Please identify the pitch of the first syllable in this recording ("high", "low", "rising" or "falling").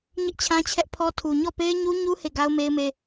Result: high